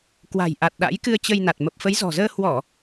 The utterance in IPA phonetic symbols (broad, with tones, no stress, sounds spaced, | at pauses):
k w a̤˨˩ j ʔ a˨˩ t̚ ɗ a̰˧˥ j k ɨ˧ ə̯ t͡ɕ ə˧ j n a˨˩ t̚ m ə˨˩ p̚ f ə˨˦ j z ɔ̤˨˩ z əː˧ h w ɔ˧˩˨